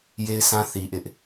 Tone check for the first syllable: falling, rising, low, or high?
high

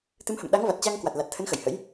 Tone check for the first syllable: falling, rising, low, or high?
rising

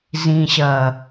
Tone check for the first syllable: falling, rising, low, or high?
low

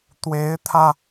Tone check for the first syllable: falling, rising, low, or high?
rising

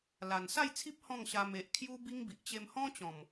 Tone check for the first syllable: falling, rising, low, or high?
low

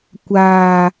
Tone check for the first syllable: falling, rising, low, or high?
low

